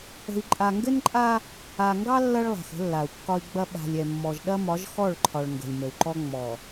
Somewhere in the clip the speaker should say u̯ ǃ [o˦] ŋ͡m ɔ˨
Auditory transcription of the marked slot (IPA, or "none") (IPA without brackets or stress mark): ɔ˦